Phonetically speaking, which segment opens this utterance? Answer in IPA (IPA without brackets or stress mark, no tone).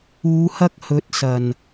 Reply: uː